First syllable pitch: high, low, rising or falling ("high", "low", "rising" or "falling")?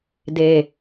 low